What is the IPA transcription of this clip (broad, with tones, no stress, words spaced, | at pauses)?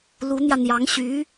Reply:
lu˧˥n̪jä˧n̪jɑ˧˥ŋ ɕy˧˥